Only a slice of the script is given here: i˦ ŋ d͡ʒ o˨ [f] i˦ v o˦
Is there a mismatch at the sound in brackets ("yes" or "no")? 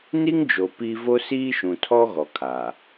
yes